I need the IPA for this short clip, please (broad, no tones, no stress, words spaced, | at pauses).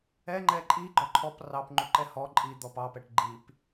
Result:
ɛŋ͡ǃɛ ǃʼi ɡ͡ǃɔǃʰɔp rɑpŋ͡ǃuǃɛ hɔ ǃʼi d̪ɔpɑpɛʈ ɡ͡ǃip